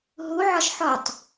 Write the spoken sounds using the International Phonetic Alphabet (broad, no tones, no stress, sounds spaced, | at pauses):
ɦ u ʕ ɒ ʃ ħ ɔ tˤ